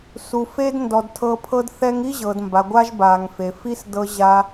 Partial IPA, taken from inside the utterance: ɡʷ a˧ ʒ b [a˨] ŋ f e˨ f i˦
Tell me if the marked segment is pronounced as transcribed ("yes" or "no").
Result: yes